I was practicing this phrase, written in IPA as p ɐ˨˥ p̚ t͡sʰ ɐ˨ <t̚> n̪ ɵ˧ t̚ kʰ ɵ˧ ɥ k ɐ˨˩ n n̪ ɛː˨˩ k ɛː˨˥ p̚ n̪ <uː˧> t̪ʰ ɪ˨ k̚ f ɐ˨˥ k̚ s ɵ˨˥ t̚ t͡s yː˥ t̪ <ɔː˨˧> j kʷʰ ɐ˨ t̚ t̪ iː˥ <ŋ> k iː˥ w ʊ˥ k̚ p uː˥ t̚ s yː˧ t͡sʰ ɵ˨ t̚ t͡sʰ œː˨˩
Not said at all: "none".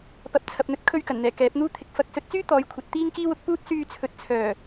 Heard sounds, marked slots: p̚, uː˥, ɔː˨˧, ŋ

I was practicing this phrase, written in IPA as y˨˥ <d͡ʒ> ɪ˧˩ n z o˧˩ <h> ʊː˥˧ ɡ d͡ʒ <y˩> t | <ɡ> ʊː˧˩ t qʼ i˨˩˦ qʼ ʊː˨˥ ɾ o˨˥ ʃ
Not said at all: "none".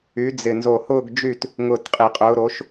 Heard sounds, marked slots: d͡z, h, y˥˧, ŋ

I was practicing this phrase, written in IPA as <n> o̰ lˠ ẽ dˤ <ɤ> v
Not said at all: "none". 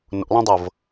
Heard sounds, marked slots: n, ɤ

